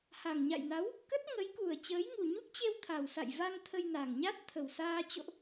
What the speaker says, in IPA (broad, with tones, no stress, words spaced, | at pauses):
ha˨˩ŋɲa̰˧˨jna˨˦w | kə˦˥t̚ŋə˨˦jku˨˩ə̯ t͡ɕəː˨˦jŋu˨˩ɲu˦˥k̚t͡ɕe˧w t̪ʰa˨˩wsa̰˧˨jva˧ŋ t̪ʰə˧jna˨˩ŋɲa˦˥t̚ t̪ʰə˨˩wsaː˧ t͡ɕo̰˧˨ʔ